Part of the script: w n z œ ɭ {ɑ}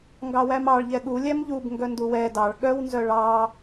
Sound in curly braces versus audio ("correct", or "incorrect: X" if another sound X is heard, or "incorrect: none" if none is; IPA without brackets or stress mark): correct